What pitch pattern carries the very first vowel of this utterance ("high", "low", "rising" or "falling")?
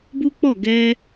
high